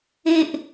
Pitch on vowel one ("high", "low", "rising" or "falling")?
high